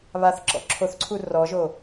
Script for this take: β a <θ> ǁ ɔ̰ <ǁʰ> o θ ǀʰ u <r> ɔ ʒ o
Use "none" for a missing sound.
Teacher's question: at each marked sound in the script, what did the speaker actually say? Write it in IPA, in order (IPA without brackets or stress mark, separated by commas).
θ, ǁʰ, r